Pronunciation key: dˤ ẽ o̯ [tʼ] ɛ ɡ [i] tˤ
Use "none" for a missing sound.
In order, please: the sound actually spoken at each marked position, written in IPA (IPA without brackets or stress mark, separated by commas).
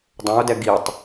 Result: d, i